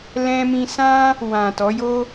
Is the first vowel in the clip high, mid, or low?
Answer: mid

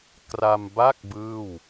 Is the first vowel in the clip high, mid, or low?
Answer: low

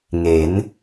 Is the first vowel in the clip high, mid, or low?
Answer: mid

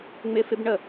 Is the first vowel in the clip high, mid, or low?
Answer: high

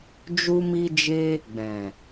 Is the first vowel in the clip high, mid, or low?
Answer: high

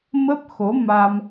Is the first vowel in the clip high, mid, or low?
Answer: mid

